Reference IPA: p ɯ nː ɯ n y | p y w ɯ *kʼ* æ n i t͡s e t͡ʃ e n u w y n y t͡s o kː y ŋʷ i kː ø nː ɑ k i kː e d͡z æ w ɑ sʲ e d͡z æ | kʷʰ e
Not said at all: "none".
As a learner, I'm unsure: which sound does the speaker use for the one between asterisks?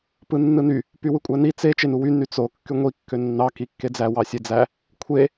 kʷʼ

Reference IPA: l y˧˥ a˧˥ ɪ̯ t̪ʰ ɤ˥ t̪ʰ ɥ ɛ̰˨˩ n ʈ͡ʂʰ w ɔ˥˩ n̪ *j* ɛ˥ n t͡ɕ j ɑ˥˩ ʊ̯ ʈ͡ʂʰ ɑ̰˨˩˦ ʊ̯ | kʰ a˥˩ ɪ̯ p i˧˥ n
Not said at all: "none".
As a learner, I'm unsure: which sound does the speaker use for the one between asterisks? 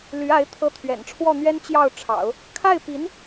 ɥ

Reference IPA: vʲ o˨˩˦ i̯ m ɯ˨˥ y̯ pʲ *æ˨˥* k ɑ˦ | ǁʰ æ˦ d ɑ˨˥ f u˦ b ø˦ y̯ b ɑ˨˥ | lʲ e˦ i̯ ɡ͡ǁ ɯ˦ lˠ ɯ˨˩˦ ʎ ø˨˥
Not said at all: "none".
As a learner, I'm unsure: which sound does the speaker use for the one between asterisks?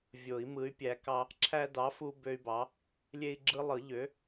æ˨˥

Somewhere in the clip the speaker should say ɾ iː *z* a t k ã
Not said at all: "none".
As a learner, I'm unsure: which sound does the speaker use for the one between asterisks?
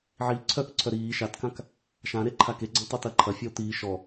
ʃ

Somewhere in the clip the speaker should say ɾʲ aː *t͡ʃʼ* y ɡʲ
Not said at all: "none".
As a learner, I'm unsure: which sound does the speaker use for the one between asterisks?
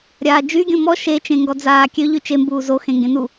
d͡ʒ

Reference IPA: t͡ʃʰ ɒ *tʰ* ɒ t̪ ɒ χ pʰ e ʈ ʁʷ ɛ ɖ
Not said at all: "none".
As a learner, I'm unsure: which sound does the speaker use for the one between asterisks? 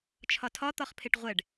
tʰ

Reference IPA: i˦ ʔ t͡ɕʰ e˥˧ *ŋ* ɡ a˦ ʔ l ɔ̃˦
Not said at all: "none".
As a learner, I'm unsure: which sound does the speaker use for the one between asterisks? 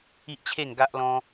ŋ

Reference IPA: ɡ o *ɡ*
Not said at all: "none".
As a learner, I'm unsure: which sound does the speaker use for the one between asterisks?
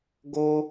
none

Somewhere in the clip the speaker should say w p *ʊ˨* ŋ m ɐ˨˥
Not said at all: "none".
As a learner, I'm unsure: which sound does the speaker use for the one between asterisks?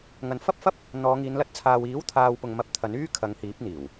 ʊ˨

